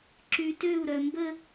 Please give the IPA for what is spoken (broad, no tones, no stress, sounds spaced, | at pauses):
ǁ y t ø u̯ ɾ œ m b ə